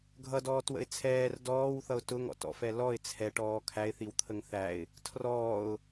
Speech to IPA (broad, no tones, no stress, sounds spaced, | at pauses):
ɡʱ ʌ d ɔː t w ə̰ ɪ̯ t͡sʰ ɛː r d ɔː w θ ʌ ʊ̯ t ʊ ŋ ɔ̰ t ɔ̰ f ɛ l ɔ ɪ̯ t͡sʰ ɛ ʈ ɔː kʰ æ ɪ̯ θ i w t̪ʰ ə ŋ θ æ ɪ̯ | tʰ r ɔː ʊ̯